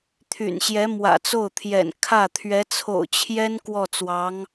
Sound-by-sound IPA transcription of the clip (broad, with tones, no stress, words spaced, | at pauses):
t̪ʰy̰˨˩nɕjɛ˧˥ mwä̰˨˩t͡so˥˩ʊ̯t̪ʰjɛ̰˨˩n kʰä˥˩ t̪ʰɥɛ˧˥t͡sʰo̰˨˩ʊ̯t͡ɕʰjɛ˥n kwɔ˥˩t͡swɑ˧˥ŋ